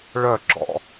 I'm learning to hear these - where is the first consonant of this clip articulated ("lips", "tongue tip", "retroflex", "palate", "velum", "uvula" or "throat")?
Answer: retroflex